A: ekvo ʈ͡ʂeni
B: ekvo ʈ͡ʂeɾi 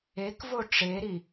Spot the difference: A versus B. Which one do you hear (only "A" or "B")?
B